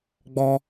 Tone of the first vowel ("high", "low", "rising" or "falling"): high